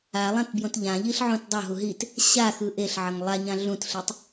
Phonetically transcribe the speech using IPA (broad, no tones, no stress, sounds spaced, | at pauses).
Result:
a lˠ ã t b j õ t ʎ ã ʎ i ɬ ʕ ũ t dˤ o ɦ u ɦ i t | ɕ a x ɯ ʔ e ɬ ʕ ʌ ŋ lˠ a ɲ ã ɮ ũ t ɬ i tˤ